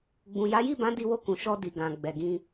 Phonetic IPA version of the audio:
ɡ͡b ũ˨ j a˨˦ j i˦˨ b ã˨˦ d i˧ w o˧ k ũ˨ ʃ ɔ˧ d i˨ ɡ ã˨ ɡ͡b ɛ˨ ɡ ĩ˧

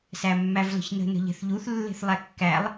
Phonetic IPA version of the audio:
s æ mː æ v l ə̤ ç n ə̤ n ə̤ ʎ ɛ̤ θ ʎ u θ lː e̤ θ lˠ æ kː æ lˠ

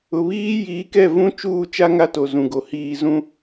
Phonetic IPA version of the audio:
ʊ˨ β iː˦ j iː˨˦ k ɛ˦˨ v ũ˦ t͡ʃ uː˦˨ t͡ʃ a˦ ŋ a˦ t o˨ z ũ˨ ɡ o˨ h iː˨ z ũ˦

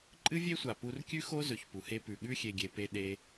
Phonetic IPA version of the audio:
ǃʼ ɨ˦ vʲ e˦ sʷ a˨ p u˨ r kʲ ʉ˦ x o˦ z ɵ˨ ç p u˨ h e˦ p ʉ˨ ɠ ʉ˦ xʲ e˨ ɡʲ e˨ p e˦ ɗ e˦

